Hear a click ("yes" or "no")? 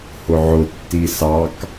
no